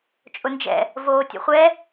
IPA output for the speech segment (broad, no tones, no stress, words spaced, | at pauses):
t͡ʃʼʊnd͡ʒɛ̰ | voːtʲɔ̰χʷɛ